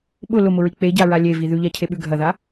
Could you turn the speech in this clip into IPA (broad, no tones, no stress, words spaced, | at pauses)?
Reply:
ɓʊ lʊmʊɹi k͡peɟaɹa lʲevi ðʉʎacʰeɓʉ ɡʱɐða